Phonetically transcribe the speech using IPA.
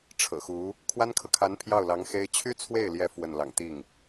ʈ͡ʂʰ ɤ̰˨˩ x u˧˥ | kʰ w a˥ n kʰ ɤ˨ kʰ a˧˥ n pʰ j ɑ˥˩ ʊ̯ l ɑ˧˥ ŋ x e˥ ɪ̯ t͡ɕʰ y˥ t͡sʰ w e˥˩ ɪ̯ l j ɛ˧˥ f w ə˥˩ n l ɑ̰˨˩ ŋ t̪ i˥˩ ŋ

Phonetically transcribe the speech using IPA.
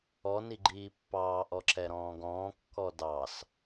ɔ n i ɡ͡ǃ iː pː ɑː ʔ ɔ ǁ ɛ ɾ ɔ̃ː ɡ ɔ̃ː kː ɔ d ɑ s

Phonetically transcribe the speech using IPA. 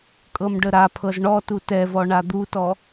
kʼ ɤ m ɖ ə ɾ a pʰ ɤ z ɳ ɔ t u t ɛ v ɔ ɳ a d̪ u t ɔ

